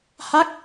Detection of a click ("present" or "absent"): absent